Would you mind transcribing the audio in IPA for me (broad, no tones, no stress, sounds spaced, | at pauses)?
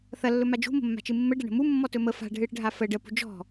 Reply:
θ ɐ lː ɵ m a d͡ʒ ṳ m ə̤ mː a̤ t͡ʃ ɨ mː ə ɖ ɐ ɳ ə̤ m u mː ɔ t ɵ m ə f a̤ ɖʱ ɨ ɽ ə̤ ɖʱ a f ə ɖ ə p ṳ d͡ʒ ɔ̤